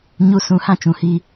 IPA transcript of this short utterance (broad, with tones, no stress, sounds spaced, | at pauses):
ɲ u˦ s ũ˦ h ã˦ t͡ʃ ũ˨ h i˦